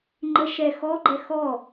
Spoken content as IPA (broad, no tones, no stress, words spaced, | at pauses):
ŋ͡ǃə ʃɛ xɔɡ͡ǃɛ xɔ